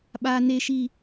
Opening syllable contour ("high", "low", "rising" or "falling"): high